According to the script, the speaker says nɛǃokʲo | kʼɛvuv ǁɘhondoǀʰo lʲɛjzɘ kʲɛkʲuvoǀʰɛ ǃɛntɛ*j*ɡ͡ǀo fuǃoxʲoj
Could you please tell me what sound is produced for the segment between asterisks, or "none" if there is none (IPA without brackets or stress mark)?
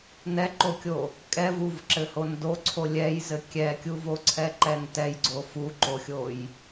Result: j